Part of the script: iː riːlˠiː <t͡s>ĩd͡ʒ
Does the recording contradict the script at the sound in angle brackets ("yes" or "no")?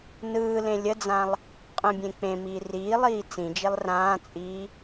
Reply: no